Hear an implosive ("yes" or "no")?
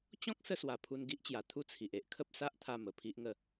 no